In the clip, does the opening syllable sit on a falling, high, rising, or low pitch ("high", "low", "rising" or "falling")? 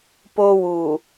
high